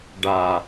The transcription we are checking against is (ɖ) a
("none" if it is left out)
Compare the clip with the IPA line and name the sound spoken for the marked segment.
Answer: ɖ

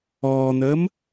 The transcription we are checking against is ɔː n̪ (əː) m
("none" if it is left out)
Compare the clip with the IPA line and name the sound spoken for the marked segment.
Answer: əː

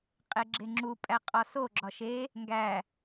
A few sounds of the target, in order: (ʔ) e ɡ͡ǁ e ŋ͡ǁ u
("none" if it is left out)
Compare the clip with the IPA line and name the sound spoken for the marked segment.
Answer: qʼ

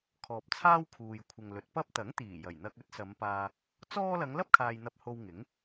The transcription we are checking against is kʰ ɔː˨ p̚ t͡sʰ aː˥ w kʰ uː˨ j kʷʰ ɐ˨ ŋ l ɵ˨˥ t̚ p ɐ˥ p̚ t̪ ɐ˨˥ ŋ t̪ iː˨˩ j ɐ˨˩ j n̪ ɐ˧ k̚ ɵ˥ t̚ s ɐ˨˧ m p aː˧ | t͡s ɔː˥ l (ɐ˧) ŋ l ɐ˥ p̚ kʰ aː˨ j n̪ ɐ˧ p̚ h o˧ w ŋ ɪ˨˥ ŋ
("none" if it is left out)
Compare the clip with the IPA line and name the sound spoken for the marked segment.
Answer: ɐ˨˧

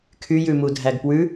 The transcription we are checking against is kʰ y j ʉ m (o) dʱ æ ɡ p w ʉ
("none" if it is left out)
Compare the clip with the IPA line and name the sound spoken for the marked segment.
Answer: u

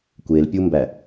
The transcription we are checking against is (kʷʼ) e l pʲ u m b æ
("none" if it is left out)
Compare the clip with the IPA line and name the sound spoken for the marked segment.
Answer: kʷ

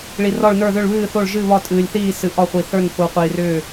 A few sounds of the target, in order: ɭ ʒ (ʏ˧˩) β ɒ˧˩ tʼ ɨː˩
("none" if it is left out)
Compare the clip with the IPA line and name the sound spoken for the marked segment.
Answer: ɨ˧˩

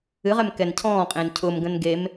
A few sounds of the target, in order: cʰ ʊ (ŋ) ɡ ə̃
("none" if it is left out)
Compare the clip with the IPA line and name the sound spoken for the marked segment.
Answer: m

